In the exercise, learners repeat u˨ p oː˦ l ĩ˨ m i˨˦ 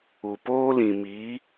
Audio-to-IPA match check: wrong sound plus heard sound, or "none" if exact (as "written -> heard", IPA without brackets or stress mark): none